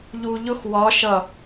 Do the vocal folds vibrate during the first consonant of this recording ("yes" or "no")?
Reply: yes